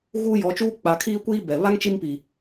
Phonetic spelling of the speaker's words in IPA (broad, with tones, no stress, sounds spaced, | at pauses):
ɣ uː˦ j ɔ˨˦ t͡ʃ uː˦ k͡p a˨ kʰ iː˦ kʷ iː˦ b ɛ˨ β a˦ ŋ t͡ʃ i˦ m p i˨